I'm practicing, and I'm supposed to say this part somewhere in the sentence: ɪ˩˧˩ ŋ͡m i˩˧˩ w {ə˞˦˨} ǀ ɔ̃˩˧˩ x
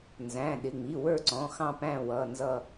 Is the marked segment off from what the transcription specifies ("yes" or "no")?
no